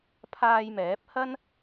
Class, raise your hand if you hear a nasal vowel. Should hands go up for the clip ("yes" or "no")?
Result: no